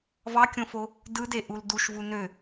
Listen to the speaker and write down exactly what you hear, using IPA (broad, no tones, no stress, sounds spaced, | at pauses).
v ɑ kʲ õ f o | d ɯ d e ʔ u l d u ʃ v u n ø